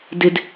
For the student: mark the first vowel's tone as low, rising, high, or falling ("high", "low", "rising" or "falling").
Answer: low